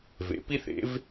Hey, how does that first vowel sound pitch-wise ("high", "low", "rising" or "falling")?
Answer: rising